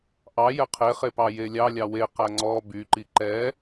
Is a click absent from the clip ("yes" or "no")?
no